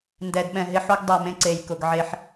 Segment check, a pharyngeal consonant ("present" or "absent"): present